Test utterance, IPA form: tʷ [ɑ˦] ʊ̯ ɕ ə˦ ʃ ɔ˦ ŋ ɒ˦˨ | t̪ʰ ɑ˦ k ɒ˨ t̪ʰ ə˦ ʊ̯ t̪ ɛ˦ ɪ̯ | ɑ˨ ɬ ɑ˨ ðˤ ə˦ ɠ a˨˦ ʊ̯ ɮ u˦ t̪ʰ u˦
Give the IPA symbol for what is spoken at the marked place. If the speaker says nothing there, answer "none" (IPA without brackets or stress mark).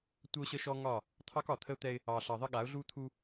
ə˦